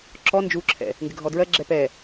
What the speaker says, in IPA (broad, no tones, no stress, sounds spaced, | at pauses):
ǁ ɔ n d͡ʒ u ǁʰ ɛ̰ | ŋ ɡ ɪ ɡʱ ɔ d ɹ ɜ ɡ͡ǁ ɛ p ɛ